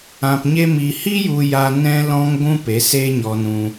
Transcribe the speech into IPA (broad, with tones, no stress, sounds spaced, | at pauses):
ã˧ p ɲ e˦ m i˧ h i˦ j u˦ j a˦ n ɛ̃˦ l ɔ̃˦ ŋ ɡʷ ũ˦ p e˨˦ s eː˦ ɲ ɔ˧ n ũ˧